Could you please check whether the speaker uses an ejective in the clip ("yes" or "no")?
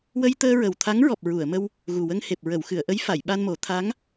no